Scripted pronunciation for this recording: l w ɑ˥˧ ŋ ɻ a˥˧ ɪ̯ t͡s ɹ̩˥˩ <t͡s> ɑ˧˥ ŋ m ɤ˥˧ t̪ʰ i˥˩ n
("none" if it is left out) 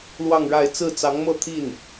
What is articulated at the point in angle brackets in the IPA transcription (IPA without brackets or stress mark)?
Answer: t͡s